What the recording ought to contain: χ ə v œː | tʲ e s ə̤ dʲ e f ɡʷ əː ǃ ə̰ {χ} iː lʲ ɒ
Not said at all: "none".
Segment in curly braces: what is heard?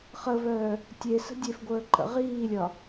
ʁ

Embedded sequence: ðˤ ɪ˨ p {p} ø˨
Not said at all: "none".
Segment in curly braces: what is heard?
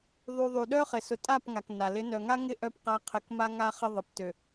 t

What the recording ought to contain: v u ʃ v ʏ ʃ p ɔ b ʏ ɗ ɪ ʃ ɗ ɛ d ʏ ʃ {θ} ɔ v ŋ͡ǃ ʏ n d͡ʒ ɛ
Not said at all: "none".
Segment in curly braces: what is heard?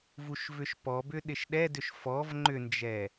f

